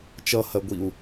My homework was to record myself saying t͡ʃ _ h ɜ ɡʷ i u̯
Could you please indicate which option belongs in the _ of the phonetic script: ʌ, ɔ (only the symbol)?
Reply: ʌ